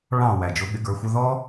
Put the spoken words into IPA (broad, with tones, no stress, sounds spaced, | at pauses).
ɭ ɑ̃˧˩ w æ˩ d͡ʒ ʊ˩˧ ɠ ɪ˩˧ ɡ ə˞˩˧ xʷ ə˧ ð ɔ˥